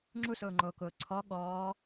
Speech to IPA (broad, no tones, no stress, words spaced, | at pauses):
ŋ͡ǁusʊːŋ͡ǃoːkʊː ǀʰɔ ɠɔː